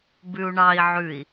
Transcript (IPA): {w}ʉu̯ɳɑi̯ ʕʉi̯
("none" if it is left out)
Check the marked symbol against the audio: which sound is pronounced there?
b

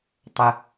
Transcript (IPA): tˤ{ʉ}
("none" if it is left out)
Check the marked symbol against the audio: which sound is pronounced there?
ə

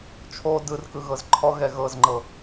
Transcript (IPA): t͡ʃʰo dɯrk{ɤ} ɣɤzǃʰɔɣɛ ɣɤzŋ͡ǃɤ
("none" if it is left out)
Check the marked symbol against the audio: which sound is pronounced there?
ɯ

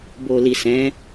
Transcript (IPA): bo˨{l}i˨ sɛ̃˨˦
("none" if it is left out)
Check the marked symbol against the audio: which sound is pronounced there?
l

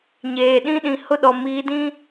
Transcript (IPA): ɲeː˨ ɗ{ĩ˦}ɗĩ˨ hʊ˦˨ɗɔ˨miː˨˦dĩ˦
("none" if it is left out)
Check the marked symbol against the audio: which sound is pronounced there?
ĩ˦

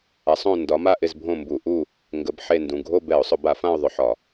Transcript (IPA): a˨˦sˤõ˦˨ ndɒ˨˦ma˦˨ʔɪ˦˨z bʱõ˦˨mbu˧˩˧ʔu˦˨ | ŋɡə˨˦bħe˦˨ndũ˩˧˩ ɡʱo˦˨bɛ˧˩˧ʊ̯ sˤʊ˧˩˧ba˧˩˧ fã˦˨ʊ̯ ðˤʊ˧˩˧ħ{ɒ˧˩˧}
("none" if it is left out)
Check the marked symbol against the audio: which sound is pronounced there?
ɒ˧˩˧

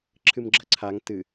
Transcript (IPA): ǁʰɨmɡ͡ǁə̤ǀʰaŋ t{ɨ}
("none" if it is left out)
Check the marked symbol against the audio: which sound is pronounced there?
ɨ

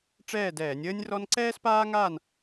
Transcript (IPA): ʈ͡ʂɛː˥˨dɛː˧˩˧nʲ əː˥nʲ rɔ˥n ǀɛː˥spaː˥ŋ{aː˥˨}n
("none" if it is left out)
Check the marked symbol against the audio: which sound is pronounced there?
aː˥˨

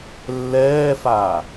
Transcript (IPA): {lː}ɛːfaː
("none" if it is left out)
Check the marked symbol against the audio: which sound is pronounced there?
lː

